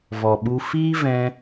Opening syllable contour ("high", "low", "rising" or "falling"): low